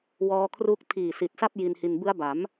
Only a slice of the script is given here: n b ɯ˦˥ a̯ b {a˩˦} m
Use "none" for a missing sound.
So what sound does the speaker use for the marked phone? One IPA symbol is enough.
a˩˦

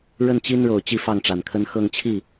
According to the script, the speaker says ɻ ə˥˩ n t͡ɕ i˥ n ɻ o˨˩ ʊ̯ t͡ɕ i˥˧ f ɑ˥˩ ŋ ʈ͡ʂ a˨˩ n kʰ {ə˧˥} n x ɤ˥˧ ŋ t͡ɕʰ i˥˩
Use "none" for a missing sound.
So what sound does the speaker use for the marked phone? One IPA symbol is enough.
ə˥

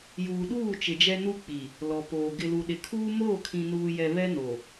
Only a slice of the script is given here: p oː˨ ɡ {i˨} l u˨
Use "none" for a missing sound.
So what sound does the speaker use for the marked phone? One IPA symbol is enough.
ɪ˨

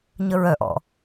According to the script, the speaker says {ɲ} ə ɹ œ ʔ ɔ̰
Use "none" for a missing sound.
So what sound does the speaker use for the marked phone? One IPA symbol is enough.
ɲ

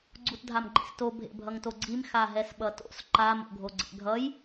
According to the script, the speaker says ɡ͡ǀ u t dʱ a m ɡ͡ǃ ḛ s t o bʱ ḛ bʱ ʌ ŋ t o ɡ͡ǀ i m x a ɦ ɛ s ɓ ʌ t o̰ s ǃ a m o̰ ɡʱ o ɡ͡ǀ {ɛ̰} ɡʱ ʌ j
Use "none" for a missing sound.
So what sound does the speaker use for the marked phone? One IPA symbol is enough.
ɛ̰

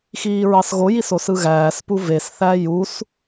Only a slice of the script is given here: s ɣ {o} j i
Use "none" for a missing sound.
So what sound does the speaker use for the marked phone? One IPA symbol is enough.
o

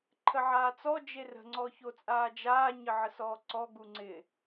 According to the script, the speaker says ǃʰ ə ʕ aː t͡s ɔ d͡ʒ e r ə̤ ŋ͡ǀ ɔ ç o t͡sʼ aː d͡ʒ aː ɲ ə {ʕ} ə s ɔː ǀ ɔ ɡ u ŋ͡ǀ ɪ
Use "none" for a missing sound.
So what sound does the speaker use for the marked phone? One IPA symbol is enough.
ʕ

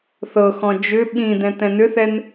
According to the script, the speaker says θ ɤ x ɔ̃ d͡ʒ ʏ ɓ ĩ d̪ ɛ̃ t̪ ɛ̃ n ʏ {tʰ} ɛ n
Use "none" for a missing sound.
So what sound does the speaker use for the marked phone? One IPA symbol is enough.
θ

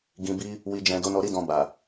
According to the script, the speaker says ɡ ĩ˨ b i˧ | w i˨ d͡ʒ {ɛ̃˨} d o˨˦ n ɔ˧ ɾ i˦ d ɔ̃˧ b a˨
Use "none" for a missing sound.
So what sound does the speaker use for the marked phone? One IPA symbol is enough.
ɛ̃˨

